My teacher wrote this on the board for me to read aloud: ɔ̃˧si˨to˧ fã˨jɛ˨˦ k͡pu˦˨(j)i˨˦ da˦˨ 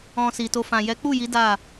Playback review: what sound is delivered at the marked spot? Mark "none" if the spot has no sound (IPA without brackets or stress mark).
j